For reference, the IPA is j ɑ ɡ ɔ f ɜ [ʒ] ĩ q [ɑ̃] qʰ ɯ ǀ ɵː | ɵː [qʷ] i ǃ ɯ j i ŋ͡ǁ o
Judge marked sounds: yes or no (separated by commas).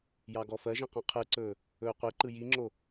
yes, yes, yes